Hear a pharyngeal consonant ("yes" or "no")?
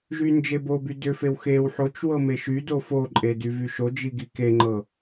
yes